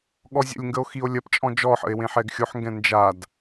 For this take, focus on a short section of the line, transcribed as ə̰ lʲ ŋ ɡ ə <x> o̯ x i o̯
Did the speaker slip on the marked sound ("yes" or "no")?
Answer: yes